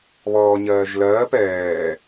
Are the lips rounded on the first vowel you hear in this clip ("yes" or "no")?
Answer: yes